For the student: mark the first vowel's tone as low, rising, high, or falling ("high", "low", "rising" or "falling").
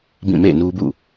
falling